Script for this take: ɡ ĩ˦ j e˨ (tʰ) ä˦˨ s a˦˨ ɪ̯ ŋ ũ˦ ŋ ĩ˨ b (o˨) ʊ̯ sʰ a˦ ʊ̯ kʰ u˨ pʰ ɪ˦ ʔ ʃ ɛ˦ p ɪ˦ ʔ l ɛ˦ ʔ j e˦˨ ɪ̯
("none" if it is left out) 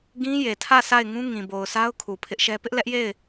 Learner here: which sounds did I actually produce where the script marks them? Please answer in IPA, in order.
tʰ, o˨

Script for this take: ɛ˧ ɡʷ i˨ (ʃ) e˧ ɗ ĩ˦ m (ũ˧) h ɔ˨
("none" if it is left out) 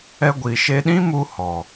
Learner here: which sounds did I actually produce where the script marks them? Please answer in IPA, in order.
ʃ, u˧

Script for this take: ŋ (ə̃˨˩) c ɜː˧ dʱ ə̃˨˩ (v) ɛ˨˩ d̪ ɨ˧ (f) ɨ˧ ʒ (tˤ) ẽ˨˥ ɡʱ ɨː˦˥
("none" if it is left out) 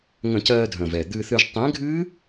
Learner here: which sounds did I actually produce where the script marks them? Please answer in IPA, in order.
ə̃˧˩˧, v, θ, tˤ

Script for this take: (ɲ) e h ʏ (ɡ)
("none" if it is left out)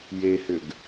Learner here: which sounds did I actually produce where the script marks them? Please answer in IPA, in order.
j, ɡ

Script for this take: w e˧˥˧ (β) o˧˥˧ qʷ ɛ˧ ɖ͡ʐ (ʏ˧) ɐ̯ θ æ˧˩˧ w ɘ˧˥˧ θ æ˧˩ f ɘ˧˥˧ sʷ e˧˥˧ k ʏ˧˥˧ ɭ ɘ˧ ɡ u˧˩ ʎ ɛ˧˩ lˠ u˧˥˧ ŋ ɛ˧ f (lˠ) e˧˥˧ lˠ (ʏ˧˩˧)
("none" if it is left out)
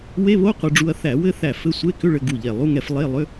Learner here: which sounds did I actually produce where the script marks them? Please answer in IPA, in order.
β, u˧, lˠ, ʏ˧˥˧

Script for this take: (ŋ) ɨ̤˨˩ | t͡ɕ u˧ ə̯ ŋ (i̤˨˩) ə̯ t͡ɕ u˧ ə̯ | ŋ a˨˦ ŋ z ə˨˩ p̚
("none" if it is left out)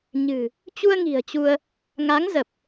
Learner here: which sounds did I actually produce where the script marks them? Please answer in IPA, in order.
ɲ, i̤˨˩

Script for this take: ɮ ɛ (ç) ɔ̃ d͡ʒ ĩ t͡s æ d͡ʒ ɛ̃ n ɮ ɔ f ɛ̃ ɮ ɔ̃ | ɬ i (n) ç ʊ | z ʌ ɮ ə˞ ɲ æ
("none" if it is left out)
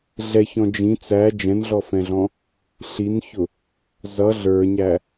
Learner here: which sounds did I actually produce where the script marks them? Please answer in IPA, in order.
ç, n

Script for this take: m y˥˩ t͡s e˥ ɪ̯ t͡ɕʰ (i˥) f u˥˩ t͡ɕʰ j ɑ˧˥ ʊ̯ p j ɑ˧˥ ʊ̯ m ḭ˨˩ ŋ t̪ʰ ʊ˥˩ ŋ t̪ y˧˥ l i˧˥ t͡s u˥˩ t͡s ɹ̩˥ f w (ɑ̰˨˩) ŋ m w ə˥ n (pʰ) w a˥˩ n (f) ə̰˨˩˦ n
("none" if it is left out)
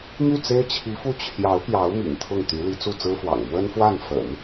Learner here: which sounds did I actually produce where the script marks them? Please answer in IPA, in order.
i˧˥, ɑ̰˨˩, f, f

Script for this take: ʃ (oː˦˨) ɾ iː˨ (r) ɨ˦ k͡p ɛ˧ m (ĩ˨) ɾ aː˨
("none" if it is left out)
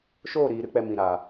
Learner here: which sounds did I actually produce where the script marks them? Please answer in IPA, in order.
oː˦˨, ɾ, ĩ˨

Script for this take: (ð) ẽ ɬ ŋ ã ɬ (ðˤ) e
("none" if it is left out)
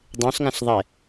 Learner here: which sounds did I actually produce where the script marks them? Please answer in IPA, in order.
dˤ, ðˤ

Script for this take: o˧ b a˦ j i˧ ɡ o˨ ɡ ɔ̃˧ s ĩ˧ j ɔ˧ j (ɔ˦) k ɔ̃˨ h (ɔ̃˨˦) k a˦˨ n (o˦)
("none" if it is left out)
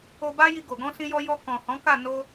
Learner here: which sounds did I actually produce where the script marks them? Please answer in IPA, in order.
ɔ˧, ɔ̃˨˦, o˧

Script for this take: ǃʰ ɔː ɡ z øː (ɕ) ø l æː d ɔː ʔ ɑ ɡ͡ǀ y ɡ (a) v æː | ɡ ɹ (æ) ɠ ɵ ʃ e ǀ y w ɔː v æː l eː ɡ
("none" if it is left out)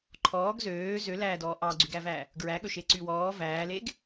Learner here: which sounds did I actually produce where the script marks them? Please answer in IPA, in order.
z, æ, æ

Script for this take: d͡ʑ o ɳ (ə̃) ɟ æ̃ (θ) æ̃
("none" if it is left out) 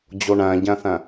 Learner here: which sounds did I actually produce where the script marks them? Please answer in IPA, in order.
æ̃, θ

